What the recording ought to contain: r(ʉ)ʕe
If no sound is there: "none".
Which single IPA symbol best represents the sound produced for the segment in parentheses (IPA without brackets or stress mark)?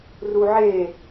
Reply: u